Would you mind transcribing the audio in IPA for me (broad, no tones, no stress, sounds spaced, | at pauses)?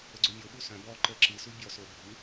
ə ɡ͡ǀ o mʲ o ɓ u s œ̃ b ɔ ǃ ə ǁ ɨ s u bʲ ɔ s o bʱ ɯ